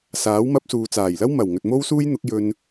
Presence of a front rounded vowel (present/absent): absent